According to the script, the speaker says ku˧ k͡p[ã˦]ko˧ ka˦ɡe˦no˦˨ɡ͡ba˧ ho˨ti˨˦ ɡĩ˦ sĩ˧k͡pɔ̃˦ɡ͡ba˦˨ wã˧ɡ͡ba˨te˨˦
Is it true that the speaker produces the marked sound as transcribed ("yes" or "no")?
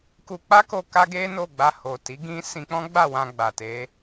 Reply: no